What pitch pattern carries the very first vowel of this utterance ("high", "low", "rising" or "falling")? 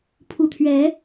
low